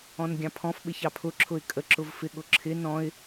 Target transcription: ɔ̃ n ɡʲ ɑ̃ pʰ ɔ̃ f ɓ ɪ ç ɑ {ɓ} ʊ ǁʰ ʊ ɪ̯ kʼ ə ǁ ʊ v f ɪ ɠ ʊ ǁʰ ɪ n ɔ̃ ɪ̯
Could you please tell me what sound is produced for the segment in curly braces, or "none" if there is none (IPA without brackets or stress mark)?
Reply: pʰ